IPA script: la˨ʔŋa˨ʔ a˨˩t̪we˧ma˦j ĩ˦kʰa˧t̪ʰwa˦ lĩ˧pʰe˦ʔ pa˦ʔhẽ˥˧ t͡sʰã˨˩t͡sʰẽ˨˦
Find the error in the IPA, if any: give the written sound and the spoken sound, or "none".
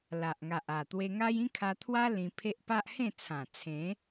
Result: m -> ŋ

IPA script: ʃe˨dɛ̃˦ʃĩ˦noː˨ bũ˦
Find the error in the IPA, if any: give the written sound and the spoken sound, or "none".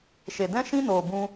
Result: none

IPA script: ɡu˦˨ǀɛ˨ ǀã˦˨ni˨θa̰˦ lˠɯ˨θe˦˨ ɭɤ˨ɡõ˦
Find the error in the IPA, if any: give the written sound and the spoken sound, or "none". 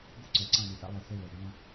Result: none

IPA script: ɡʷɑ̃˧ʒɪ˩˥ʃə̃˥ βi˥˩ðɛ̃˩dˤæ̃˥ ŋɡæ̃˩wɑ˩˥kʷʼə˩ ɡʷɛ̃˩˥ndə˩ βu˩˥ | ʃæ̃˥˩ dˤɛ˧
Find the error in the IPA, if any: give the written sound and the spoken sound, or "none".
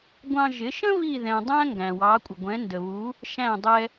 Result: none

